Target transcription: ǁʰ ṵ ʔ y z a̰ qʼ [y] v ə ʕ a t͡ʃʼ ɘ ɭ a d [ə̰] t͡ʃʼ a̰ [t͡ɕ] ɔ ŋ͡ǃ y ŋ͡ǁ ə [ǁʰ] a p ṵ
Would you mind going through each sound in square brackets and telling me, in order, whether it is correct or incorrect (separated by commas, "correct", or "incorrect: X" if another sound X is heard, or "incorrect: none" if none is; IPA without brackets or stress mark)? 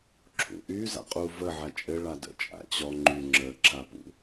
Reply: incorrect: u, correct, correct, correct